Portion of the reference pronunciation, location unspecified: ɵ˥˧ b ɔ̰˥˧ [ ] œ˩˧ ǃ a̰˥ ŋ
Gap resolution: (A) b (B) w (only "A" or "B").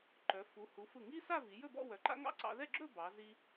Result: B